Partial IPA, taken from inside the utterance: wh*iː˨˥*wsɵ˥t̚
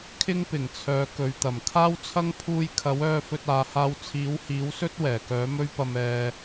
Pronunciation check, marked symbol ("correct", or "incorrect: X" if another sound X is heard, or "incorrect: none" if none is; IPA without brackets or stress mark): correct